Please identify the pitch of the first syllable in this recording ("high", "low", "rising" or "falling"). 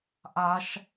high